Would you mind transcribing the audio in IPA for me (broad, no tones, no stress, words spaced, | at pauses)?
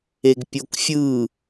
eɡpʲokfʲɯ